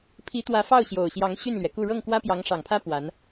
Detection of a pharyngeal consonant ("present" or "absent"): absent